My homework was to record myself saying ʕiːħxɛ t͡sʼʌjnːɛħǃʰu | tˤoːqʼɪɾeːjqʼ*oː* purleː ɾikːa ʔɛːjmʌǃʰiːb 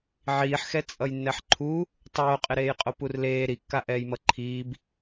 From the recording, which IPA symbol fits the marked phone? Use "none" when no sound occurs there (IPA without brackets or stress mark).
o